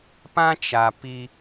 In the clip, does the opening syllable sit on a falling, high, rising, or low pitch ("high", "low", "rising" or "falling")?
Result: high